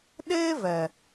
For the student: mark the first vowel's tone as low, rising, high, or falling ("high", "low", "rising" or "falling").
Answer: high